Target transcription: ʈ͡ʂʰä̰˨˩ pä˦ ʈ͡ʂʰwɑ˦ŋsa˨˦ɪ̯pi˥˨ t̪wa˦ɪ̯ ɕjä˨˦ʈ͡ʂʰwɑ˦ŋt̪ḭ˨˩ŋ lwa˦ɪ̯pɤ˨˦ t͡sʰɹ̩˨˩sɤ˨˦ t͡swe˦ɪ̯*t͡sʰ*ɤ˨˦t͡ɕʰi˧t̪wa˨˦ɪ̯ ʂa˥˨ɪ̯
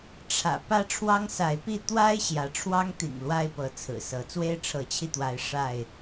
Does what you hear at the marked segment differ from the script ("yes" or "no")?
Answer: yes